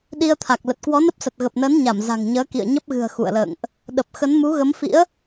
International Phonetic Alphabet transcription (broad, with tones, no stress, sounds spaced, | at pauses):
ɗ i˧ ə̯ t̪ʰ a˨˩ k̚ l ə˨˩ t̚ k w ɔ˨˦ n ə˦˥ p̚ s ə˨˩ t̚ ɣ ə˨˩ p̚ n əː˨˦ n ɲ a˧˩ m z a̤˨˩ ŋ ɲ əː˨˦ k ḭ˧˨ ə̯ ɲ ə˦˥ p̚ ɣ ɨ̤˨˩ ə̯ x ṵ˧˨ ə̯ l ə̰ː˧˨ ŋ ʔ | ɗ ə˨˩ p̚ x ə˨˦ n m u˨˦ ɣ ə˨˦ m f ḭ˧˥ ə̯